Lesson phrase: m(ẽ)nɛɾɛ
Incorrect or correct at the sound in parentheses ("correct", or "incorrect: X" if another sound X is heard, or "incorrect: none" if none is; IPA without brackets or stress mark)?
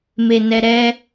incorrect: e